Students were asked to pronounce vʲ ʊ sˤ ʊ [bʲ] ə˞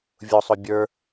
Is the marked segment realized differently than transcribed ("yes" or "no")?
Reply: no